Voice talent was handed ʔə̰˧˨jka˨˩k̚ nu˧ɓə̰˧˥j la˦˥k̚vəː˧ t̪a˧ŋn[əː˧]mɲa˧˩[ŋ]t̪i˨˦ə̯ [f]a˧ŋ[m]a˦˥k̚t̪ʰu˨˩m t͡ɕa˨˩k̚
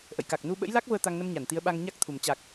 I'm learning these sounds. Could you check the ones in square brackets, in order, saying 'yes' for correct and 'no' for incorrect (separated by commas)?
no, no, no, no